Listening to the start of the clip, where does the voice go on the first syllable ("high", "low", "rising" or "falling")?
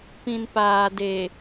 low